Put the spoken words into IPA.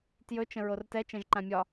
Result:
t j ɵ t͡ʃ ə̃ ɹ o r t ɛ t͡ʃ ɛ̃ ʒ ǃ ã mʲ ɒ

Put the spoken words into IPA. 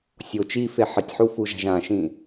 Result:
sʲ o t͡ʃ i f e ħ ɪ tʲ ħ u f u ʒ a̤ ʒ ã ʃ ĩ

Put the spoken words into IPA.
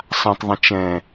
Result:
sˤ ã tˤ ðˤ ə̃ t͡ʃ ɛ̃

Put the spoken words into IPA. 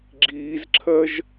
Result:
ɡ͡ǁ iː z ǁʰ ɜ ʒ

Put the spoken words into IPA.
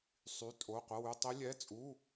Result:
sˤ y˧˥˧ tʼ o˧˥˧ qʷ ɐ˧˥˧ w y˧˥˧ tˤ i˦˥ lʲ ɛ˧˥˧ t͡sʼ u˧˥˧

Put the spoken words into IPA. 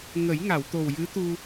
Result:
ŋ ə˨˩˦ j ŋ a˨˩˨ w t̪ o˨˩ w j ɨ˧˥ t̪ u˧

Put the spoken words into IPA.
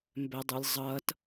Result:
m b ɛ dˤ u lʲ zˤ ʌ t

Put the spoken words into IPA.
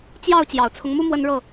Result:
t͡ɕ j ɑ˥˨ ʊ̯ t͡ɕ j ɑ˨˩ ʊ̯ t͡sʰ ʊ˦ ŋ m u˦ m w ə˦ n ɻ ɤ˥˨

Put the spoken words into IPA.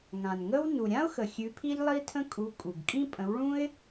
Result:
ŋ ã˩ n ŋ ə˥ w n u˩ ɾʲ ã˥ ʊ̯ x ə˩ xʲ ʉ˨˥ pʰ i˥ ʎ lˠ i˥ tʰ ə̃˥ kʼ u˨˥ kʼ u˩ ɡ kʼ ĩ˥ pʼ ə̃˨˥ w ɭ ũ˥ ɪ̯

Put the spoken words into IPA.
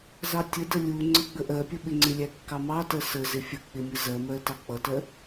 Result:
z ɑ tʲ ə d ə lʲ u ŋ͡ǀ ə ɡ͡b ə ʔ ɜ pʲ ə ɓ ɪ ŋ͡ǀ ɪ lʲ æ kː ɑ m ɑ t ɜ s ə z ɪ fʲ ə k͡p ɪ mʲ ə z ɜ m ɜ t ɑ k͡p ʌ t ɜ

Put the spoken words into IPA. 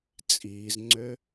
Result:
t͡sʼ iː z ŋ͡ǀ ø

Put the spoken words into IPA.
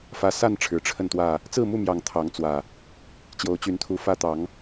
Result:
f ä˨˦ s a˥˨ n ʈ͡ʂʰ ɻ̩˨˦ ʈ͡ʂʰ ə˥˨ n t̪ w ä˥˨ | t͡s ɹ̩˥˨ m u˥˨ m j ɑ˨˩ ŋ t̪ʰ ɑ˨˦ ŋ t͡s w ä˨˩ | t͡ɕ j o˨˦ ʊ̯ t͡ɕ y˨˦ n t̪ʰ u˨˦ f ä˦ t̪ ɑ˨˦ ŋ

